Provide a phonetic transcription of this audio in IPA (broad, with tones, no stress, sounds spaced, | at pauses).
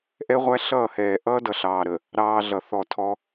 ʔ ɛ˦ ʁʷ æ˦ ɬ ʌː˦˨ h ɛː˨ ʔ ʌː˦ d ʌ˨ ɬ ɑː˨ ɾ ə˨ | ɾ ɑː˦ ɮ ʌ˨ θ ɔ˦˨ tʰ ɔ˦